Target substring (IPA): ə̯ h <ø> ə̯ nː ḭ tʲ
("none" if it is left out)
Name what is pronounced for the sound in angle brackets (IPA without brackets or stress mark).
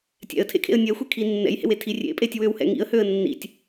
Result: ø